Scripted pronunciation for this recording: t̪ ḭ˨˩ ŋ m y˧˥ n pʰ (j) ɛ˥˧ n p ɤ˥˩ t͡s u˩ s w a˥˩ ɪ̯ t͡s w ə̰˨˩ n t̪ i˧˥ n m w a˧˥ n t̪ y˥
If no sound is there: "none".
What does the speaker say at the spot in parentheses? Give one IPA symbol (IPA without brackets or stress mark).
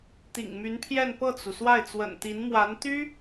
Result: j